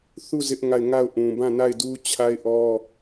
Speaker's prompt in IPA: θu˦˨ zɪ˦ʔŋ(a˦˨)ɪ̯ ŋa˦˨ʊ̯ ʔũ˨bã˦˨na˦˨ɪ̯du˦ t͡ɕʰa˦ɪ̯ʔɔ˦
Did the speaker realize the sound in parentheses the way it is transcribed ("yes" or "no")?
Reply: yes